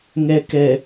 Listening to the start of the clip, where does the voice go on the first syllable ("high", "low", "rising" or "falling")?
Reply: low